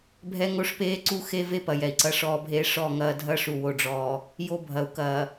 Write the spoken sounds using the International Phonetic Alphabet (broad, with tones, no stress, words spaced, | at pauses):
bʱɛ˦ŋo˦ʂpeː˦ǀu˦ xe˦ve˦pɐ˨ jɛ˨i̯ǀɐ˦ʂɔː˦bʱeː˦ ʂɔ˦˨ŋɐː˦ dʱɐ˦ʂu˨wo˨ɖ͡ʐɔː˨ | jo˦bʱɐ˨u̯kɐː˨